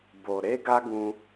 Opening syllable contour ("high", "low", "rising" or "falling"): low